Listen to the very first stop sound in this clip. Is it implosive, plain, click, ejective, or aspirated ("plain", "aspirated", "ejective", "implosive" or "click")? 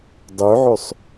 plain